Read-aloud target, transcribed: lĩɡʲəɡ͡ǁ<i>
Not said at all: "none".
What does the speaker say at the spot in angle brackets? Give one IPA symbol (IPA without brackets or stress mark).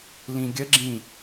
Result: ĩ